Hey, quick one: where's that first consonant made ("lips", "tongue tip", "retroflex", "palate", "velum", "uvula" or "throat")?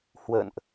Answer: throat